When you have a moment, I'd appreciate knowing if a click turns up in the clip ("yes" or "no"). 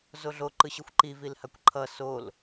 yes